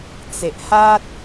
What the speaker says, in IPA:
t͡s e˨ ʔ h a˦ t̚

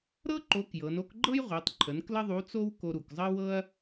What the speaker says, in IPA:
ɾ ɤ˥ ǃ o˧˥ k j ɤ˩˧ n o˥ k ɡ͡ǃ ɤ˥ j ʁʷ e˩˧ tˤ ǃʰ ə˩˧ n k l ə˥ ðˤ u˧˥ t͡s o˥ w k o˧ ɾ u˩ k zˤ ə˥ w ɤ˥ ɐ̯

